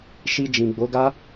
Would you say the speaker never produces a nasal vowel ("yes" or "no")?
no